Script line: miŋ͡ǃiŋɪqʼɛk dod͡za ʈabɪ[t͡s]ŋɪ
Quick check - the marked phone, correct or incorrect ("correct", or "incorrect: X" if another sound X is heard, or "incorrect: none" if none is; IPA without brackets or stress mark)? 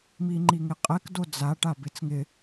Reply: correct